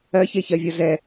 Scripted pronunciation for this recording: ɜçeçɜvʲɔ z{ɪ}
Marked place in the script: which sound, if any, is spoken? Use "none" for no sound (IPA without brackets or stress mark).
ɛ